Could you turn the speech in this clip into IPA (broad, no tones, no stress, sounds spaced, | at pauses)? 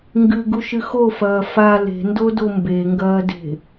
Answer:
ŋ ɡ ɨ ɡ u ʃ ɨ x o f ɐː f a l e̤ n d o d o m b e ŋ ɡ ɐː d e̤